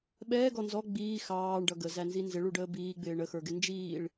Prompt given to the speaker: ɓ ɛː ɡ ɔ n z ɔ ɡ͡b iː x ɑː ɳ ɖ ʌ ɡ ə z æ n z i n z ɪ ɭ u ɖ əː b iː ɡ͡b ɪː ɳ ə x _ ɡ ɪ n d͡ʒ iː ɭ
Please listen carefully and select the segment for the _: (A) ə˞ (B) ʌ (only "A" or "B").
A